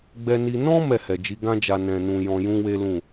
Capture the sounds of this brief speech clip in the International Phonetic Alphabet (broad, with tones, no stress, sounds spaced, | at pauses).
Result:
ɡ͡b ɛ˧ n i˧ n ɔ̃˦ m ɛ˦˨ h ɛ˨ d͡ʒ i˨˦ ɡ ã˧ d͡ʒ a˨ n ɛ̃˨ n ũ˨ j ɔ̃˧ j ũ˦ w e˦ l ũ˦˨